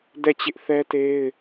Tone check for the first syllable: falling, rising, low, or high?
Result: falling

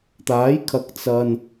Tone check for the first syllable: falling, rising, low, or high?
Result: rising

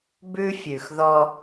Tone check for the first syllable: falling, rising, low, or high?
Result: high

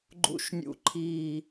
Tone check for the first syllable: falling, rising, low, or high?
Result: low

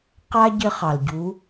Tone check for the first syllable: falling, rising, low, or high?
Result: high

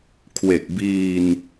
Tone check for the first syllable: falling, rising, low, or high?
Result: low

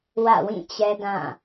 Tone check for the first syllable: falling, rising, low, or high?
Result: falling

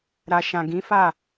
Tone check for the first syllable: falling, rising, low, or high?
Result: low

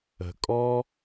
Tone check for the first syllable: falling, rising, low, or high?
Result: low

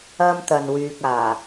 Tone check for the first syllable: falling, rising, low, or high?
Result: high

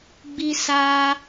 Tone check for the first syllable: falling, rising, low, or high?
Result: high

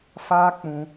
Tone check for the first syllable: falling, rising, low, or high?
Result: high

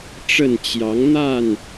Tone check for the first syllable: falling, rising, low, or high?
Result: falling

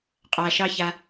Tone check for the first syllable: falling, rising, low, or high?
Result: low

